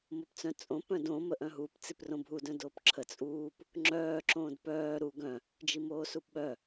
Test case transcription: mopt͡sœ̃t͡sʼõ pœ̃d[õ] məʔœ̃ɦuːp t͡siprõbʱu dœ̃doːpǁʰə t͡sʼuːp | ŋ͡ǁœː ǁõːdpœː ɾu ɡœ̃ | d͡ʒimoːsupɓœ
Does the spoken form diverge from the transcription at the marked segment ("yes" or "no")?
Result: no